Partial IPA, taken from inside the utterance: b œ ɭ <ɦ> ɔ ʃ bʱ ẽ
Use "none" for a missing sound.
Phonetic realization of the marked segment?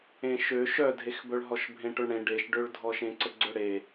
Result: ɦ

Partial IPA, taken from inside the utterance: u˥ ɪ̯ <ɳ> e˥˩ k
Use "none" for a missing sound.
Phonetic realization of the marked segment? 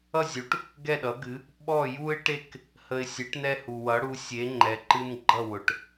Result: ʈ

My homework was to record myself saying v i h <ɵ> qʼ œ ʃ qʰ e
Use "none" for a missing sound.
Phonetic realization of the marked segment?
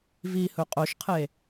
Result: ɵ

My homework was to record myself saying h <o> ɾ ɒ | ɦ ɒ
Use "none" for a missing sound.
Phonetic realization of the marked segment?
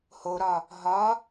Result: o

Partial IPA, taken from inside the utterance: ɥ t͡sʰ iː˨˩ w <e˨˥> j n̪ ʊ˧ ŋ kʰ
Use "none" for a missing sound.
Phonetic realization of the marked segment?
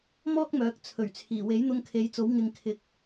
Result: e˨˥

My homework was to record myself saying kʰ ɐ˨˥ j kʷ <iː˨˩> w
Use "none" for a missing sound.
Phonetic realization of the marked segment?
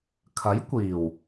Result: iː˨˩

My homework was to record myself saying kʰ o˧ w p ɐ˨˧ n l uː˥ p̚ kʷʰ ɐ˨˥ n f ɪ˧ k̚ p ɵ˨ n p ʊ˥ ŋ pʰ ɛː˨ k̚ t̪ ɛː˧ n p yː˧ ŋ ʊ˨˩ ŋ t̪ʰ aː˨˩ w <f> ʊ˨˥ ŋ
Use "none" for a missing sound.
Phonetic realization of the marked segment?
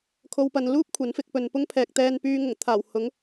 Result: h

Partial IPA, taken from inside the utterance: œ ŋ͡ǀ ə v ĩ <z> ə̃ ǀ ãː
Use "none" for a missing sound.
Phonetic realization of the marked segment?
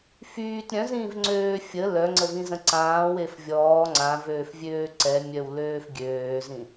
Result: z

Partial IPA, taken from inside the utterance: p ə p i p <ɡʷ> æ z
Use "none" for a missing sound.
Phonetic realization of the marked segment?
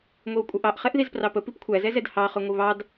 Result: kʷʰ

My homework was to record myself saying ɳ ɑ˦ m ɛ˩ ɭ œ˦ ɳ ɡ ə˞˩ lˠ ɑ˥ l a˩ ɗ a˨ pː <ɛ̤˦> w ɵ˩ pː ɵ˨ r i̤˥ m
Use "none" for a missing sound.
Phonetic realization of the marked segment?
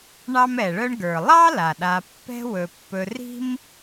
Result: ɛ̤˦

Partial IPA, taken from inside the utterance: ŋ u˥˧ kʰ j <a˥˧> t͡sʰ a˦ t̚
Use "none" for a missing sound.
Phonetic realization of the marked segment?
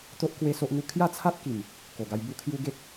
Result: a˥˧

